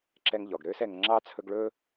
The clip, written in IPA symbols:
ǁɛ˥ŋʎɔ˩ɡ ɾøː˥sɛ˨ŋ ŋ͡ǁɑ˥t͡sʰɵ˦ɡɭɵː˥

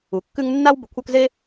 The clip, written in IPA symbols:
u˩kːʉ˦ŋ nːa˦w bə˨kʷʰœ˦k ze˦

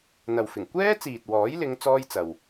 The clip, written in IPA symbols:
n̪ɐ˨wfɪ˨˩ŋ kʷɛː˥t͡siː˨t̚ wɔː˨˥jlɪ˨˧ŋ t͡sɔː˥jt͡sɐ˨w

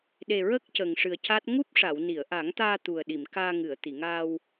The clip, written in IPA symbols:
ɗe˨˩ɹə˦˥k̚ cə˨˩ŋʂɨ˨˩ə̯ca˦˥t̚ ŋu˦˥p̚ʂa˨˩˨w ni˨˩˨ə̯ʔa˨˩˦ŋt̪aː˧ t̪u˨˩ə̯ɗi˨˩˨m kaː˧ŋɨ˨˩˨ə̯ t̪i˨˩˨ŋaː˧w

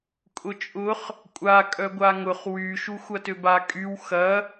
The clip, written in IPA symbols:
kʼʊt͡ʃʼʊχ | kʷʼa kʼœɡʷaŋʊχ wy ʃuxʷɐtøba kʼyw xɐ

